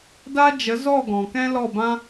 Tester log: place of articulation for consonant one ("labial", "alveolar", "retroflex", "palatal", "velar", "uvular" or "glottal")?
alveolar